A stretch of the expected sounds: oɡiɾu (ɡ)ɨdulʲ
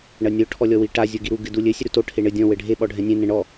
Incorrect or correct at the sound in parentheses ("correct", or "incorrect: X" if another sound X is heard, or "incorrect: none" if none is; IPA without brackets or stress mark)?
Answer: correct